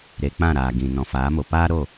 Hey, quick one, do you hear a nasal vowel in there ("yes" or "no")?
yes